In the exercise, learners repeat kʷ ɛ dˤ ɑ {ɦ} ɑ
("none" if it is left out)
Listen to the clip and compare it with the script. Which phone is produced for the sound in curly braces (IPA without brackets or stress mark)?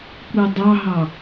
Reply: ɦ